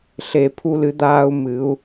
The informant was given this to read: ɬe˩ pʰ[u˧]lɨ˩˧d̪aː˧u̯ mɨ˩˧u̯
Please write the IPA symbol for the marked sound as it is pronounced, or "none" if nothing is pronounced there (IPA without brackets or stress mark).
u˧